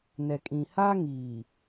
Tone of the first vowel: low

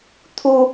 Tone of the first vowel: high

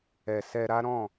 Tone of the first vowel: low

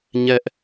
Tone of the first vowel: high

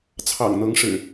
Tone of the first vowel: low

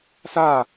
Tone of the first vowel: falling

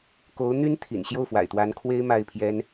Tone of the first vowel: rising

